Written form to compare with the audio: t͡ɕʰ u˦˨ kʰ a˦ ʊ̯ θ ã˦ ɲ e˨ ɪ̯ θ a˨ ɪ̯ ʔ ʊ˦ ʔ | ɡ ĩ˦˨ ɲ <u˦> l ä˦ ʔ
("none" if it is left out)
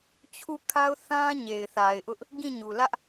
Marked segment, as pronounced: u˨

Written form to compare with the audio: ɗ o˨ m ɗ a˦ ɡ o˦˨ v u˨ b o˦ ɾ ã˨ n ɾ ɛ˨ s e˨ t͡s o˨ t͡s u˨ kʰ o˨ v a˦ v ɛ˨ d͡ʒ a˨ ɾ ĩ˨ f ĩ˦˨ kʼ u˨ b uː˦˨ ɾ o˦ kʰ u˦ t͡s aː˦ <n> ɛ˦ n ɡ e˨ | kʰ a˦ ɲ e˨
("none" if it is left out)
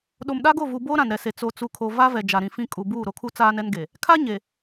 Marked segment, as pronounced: n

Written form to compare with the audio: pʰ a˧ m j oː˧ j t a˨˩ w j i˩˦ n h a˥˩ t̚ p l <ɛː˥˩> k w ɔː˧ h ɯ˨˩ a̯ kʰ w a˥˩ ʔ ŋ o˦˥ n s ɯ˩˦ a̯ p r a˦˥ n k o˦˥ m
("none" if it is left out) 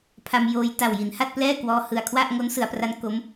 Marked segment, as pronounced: ɛː˥˩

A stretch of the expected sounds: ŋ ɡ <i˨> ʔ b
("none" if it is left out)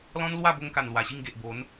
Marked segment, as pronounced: e˨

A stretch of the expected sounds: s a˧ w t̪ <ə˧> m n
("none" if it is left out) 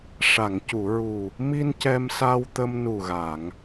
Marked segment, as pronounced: ə˧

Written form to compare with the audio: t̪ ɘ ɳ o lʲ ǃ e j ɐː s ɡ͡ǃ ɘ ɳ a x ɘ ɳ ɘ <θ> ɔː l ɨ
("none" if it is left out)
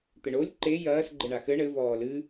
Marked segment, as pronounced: v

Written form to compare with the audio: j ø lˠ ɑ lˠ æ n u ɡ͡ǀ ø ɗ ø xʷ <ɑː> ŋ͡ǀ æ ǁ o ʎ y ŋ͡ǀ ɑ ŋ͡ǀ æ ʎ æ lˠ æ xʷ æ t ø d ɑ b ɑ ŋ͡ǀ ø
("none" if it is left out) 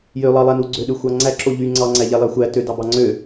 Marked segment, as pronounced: ɑ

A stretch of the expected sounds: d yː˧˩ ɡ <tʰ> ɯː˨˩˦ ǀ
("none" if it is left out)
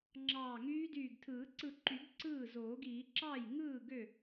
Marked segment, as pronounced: tʰ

